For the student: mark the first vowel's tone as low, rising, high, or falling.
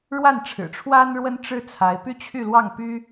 falling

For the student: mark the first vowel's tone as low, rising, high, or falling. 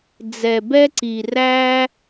low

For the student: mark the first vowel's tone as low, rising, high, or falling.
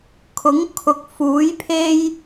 rising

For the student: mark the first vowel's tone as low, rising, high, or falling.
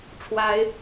rising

